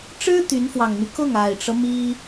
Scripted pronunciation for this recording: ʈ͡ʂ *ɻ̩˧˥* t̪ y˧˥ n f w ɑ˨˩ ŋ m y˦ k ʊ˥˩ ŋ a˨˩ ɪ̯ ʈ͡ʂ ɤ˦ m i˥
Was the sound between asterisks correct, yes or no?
no